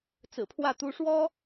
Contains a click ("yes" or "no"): no